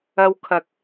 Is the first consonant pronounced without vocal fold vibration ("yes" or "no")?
no